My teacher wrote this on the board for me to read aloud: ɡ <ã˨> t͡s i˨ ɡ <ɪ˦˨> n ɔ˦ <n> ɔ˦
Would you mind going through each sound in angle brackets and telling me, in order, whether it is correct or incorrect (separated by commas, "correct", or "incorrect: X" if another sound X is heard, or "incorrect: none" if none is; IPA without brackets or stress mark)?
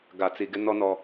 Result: incorrect: a˨, incorrect: ɪ˦, correct